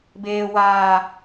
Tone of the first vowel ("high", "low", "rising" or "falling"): low